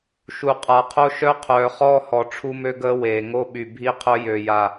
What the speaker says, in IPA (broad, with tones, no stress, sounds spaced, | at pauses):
ʃ u˨ qʼ a˨ qʰ o˦ ʃ œ˦ qʰ œː˨ χ ɔː˦ h ɔ˨ ʈ͡ʂʰ u˦ m ø˦ ɡ əː˦ w eː˨ ŋ o˦ ɓ y˨ bʱ i˦ qʰ œ˦ j ø˨ j a˨